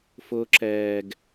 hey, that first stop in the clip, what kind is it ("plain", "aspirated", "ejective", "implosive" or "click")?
click